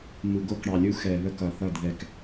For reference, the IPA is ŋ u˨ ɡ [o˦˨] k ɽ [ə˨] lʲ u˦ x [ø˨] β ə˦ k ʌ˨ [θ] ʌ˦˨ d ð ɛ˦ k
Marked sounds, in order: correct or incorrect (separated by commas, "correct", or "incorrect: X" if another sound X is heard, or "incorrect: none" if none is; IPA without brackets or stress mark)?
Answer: correct, incorrect: ɑ˨, incorrect: ɛ˨, correct